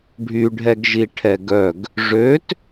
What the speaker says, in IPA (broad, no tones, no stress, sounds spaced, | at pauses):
ɖʱ y ɖʱ ɛ ɡ ʒ i ʈʰ ɛ ɡ œ ɡ | ʐ ø t